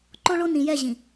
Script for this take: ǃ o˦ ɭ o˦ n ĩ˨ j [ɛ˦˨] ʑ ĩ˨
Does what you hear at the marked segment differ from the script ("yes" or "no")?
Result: no